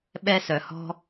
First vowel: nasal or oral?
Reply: oral